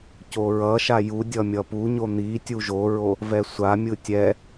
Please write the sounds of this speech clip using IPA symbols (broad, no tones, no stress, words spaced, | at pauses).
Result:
coɹʌʃa judʲʌ mʲʌpuɲo n̪i tʲuʒoɹo | vɛsʷamʲɯ tʲɛ